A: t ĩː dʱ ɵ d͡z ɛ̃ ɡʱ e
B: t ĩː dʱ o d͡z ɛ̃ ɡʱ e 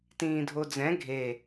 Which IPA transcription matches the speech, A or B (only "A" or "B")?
B